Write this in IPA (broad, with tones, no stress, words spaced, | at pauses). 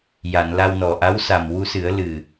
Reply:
ja˨˩˨nla˧wnɔ˨˩ ʔa˧˥wsa˨˩mwu˧sɨ˨˩˦ə̯ lɨ˨˩